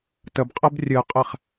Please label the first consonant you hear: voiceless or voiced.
voiceless